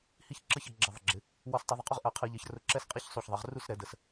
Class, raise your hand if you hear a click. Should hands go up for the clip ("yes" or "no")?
yes